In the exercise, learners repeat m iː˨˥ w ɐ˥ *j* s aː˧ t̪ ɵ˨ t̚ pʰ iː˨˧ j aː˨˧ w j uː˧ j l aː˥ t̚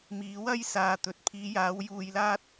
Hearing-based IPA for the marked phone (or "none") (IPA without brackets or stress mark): j